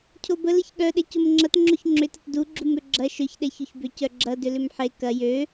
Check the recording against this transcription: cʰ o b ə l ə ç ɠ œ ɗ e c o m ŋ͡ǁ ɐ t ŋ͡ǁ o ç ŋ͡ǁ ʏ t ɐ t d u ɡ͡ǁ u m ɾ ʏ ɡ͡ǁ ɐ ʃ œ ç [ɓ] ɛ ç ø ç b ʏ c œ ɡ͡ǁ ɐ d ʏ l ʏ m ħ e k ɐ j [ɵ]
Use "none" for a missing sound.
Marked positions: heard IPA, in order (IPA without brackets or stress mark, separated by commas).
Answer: ɗ, ø